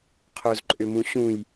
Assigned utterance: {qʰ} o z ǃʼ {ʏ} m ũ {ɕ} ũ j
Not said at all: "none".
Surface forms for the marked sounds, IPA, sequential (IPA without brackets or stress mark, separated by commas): qʰ, ʏ, ɕ